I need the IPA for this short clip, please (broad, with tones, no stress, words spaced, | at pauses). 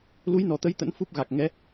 lu˨˦jnɔ˨˩t̪ə˨˦j t̪ə̰˧˥nfu˦˥p̚ɣa˨˩k̚ ŋɛ˨˦